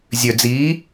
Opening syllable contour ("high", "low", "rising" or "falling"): low